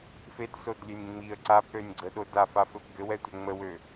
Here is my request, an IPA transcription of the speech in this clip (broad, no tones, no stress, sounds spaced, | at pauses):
f e d s o d lʲ e nʲ ŋ͡m i ə̯ ǀ a p ɾ ø nʲ ɡ͡ǀ ə ɗ o d a f a f ɘ p ɡ ɘ w ɛ tʷ ɛ ŋ͡m ə w ø